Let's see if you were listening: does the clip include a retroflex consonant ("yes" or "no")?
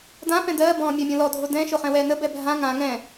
no